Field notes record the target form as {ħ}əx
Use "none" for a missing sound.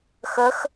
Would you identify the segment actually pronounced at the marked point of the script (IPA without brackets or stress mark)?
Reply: x